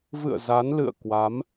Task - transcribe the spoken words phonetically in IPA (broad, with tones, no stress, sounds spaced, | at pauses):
v ɨ̰˧˨ ə̯ z a˨˦ n l ɨ̰˧˨ ə̯ k w a˨˦ m